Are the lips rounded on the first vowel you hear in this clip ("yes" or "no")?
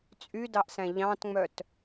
yes